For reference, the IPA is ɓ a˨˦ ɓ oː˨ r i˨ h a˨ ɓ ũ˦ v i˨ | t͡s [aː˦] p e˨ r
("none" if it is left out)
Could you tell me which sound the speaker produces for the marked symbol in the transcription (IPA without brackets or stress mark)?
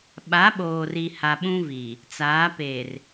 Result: aː˨˦